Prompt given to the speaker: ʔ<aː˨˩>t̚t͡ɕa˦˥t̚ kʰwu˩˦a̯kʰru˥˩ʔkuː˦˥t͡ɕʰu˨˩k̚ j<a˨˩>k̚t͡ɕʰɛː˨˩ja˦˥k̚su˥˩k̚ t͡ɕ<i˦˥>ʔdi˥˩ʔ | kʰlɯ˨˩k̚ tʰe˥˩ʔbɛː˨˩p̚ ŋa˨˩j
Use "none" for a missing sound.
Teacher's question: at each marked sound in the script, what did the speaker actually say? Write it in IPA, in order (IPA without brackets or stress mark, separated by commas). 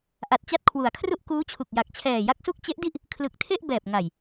a˨˩, a˨˩, e˦˥